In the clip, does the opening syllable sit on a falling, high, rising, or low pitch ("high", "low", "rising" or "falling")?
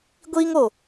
high